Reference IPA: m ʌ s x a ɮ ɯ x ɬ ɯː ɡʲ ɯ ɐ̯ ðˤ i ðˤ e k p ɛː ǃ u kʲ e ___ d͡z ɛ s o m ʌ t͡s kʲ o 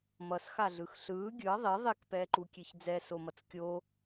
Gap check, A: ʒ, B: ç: B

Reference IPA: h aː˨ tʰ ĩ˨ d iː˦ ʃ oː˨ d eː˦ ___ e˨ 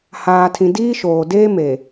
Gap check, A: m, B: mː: A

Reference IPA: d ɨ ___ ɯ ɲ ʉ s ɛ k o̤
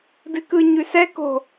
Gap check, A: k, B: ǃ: A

